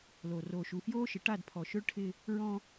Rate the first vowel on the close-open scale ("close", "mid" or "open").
mid